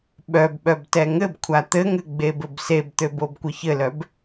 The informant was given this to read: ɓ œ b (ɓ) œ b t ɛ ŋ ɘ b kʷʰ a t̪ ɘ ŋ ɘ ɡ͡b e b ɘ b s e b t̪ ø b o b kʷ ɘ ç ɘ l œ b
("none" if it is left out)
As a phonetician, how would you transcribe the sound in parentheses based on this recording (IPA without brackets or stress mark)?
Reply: ɓ